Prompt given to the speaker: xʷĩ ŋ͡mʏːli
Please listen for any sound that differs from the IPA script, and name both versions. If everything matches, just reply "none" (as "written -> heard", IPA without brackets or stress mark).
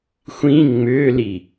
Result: none